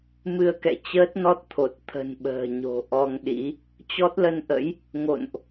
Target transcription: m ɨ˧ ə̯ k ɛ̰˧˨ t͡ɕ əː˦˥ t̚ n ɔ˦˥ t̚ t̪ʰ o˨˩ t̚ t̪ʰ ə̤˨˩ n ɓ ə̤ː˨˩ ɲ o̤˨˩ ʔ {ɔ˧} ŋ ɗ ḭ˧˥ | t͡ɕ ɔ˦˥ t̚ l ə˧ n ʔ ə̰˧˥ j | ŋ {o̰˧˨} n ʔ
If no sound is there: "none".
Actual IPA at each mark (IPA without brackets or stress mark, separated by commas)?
ɔ˧, o̰˧˨